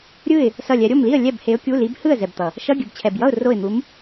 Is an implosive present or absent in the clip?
absent